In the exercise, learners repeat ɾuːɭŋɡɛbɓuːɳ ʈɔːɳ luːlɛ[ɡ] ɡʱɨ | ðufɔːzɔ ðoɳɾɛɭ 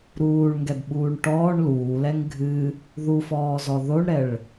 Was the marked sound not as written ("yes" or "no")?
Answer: yes